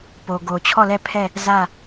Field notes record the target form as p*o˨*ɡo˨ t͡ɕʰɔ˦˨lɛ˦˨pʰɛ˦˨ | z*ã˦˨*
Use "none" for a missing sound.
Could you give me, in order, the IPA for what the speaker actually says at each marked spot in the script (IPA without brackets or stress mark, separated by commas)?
o˨, ä˦˨